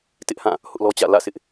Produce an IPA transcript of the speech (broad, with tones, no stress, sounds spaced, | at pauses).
t ɪ˦ ʔ h ã˦˨ | h ʊ˦ ʔ l ɔ˦ t͡ɕ ä̰˦˨ l ä̰˦˨ s ɪ˦ ʔ